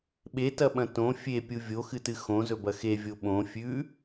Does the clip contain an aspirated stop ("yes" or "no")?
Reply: no